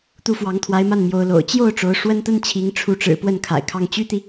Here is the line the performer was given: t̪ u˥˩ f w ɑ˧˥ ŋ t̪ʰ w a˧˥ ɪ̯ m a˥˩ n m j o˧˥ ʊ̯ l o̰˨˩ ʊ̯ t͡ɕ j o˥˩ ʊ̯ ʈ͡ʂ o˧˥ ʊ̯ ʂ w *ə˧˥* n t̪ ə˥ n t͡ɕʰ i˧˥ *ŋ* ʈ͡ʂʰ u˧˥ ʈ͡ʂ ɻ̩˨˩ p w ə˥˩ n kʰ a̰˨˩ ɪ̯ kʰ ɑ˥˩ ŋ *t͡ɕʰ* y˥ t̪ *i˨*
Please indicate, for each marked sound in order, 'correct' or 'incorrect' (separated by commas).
incorrect, correct, incorrect, correct